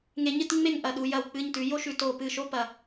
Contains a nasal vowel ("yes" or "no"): no